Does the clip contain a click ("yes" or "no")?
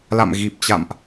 no